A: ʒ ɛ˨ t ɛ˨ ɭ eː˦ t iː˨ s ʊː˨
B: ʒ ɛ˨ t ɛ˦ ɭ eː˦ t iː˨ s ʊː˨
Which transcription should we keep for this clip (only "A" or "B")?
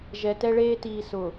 B